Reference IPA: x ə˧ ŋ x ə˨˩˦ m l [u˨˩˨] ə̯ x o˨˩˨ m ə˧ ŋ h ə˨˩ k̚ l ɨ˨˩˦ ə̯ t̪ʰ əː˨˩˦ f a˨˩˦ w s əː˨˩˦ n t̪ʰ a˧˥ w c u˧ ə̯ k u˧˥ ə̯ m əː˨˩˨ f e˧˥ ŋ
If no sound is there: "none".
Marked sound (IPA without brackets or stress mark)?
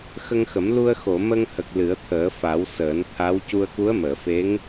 u˧